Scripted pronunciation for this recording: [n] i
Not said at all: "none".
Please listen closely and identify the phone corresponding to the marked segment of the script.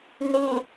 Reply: n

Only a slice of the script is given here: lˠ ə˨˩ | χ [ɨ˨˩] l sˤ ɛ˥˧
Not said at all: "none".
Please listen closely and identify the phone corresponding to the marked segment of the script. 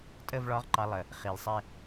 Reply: i˨˩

